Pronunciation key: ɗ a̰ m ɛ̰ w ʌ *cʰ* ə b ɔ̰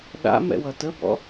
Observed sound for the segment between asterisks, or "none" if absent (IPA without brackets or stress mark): t